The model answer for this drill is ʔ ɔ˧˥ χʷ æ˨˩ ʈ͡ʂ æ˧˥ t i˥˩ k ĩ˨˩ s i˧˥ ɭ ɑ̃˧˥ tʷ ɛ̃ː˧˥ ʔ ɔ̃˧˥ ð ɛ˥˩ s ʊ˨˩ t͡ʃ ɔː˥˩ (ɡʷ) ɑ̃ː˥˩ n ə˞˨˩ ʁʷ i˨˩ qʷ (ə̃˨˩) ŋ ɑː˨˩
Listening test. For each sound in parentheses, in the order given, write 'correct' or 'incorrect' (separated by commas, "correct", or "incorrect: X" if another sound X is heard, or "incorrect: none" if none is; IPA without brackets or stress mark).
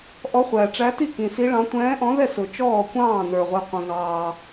incorrect: kʷ, correct